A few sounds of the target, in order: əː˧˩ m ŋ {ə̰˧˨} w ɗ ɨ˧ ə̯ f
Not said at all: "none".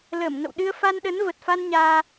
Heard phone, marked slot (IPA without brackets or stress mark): ə̰˧˨